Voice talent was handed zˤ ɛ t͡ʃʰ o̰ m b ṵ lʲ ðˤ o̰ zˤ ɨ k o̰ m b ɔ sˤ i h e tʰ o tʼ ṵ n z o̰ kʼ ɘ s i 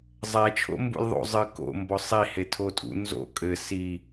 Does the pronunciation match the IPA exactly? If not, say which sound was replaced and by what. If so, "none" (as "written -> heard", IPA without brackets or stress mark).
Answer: none